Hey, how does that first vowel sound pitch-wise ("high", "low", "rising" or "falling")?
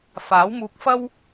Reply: rising